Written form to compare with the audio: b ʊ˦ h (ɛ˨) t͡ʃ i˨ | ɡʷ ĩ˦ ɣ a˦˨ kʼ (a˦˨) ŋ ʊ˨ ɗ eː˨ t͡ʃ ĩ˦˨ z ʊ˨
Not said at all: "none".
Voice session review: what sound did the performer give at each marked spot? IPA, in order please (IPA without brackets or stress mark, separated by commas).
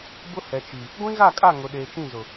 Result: ɛ˨, a˦˨